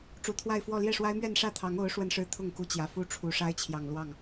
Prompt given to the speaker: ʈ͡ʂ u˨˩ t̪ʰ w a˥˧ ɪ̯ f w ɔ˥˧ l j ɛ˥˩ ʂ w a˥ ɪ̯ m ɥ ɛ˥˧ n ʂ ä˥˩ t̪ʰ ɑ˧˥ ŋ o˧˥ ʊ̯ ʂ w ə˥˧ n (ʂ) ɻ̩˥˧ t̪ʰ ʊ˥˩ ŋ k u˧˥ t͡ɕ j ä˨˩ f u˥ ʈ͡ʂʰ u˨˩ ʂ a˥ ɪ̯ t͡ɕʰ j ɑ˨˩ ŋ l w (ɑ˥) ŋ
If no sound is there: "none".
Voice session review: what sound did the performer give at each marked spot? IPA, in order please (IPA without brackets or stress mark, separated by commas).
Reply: ʂ, ɑ˥˩